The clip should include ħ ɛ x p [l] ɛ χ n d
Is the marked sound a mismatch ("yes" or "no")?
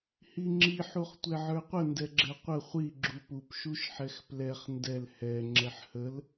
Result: no